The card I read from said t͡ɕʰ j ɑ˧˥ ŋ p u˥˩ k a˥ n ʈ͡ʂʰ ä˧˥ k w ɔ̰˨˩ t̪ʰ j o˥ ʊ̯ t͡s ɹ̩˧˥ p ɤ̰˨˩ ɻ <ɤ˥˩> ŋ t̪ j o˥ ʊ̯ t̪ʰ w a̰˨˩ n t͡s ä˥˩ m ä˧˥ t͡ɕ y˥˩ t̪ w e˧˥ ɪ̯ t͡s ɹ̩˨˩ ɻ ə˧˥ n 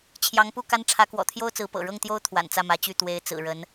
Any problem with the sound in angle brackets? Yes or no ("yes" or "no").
no